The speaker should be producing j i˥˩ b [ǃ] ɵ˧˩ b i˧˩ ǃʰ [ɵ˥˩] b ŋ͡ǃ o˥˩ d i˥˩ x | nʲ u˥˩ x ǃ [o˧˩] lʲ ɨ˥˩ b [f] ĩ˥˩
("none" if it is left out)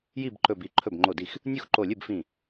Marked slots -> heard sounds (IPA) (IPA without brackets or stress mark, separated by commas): ǃ, ɵ˥˩, o˧˩, f